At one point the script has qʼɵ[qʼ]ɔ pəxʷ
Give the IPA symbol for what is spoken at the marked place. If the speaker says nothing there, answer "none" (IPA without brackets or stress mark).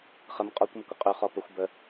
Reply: χ